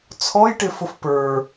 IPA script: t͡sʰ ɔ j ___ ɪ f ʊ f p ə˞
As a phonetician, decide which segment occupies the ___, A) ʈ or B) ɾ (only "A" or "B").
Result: A